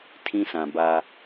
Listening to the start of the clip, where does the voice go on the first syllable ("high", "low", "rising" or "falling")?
high